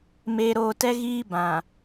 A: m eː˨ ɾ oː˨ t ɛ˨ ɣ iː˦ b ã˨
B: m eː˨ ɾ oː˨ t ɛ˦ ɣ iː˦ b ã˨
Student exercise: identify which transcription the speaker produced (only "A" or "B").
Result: B